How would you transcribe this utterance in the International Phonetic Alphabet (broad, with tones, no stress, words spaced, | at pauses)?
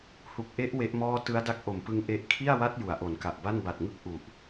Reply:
hu˨˩k̚ʔe˦˥ʔ we˦˥ʔmɔː˥˩ tɯ˦˥a̯da˦˥k̚ʔo˨˩mpɯ˧ŋ ʔe˦˥ʔ kʰi˥˩a̯wa˦˥t̚ ju˩˦a̯ʔo˩˦nka˨˩ʔba˥˩n ba˨˩t̚ŋɯ˥˩k̚ ʔu˨˩ʔ